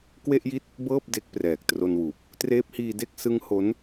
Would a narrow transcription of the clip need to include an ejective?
no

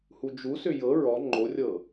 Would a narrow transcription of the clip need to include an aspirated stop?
no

